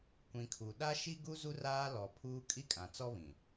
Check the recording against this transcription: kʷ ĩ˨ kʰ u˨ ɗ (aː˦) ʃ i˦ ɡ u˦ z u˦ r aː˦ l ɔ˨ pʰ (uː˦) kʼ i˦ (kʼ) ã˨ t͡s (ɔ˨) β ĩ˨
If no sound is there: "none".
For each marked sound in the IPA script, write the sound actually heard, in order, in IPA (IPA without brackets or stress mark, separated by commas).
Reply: a˦, uː˦, kʼ, ɔ˦